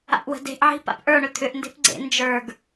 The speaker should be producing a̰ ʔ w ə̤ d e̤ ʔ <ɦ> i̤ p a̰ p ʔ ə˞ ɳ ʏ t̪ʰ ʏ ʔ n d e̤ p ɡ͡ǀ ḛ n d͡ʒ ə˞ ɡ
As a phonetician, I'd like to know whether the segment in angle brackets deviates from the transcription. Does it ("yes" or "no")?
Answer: yes